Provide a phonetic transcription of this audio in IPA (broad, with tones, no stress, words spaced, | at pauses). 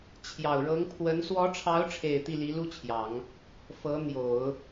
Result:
t͡ɕʰjɑ˨˩ʊ̯ɻɤ˧˥ŋ pʰwə˧˥n swɔ˧˥ʈ͡ʂʰɑ˧˥ʊ̯ʈ͡ʂʰe˨˩ɪ̯ t̪i˥˩li˧˥lu˥t͡ɕʰjɑ˨˩˦ŋ | fɤ˧˥n̪jo˨˩˦ʊ̯